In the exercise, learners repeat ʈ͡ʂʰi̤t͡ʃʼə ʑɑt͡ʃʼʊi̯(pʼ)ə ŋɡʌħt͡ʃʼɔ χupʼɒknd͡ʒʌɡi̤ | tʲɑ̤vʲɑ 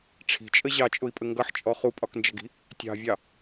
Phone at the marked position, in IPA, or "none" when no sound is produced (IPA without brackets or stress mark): pʼ